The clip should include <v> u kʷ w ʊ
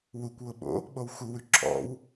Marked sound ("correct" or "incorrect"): incorrect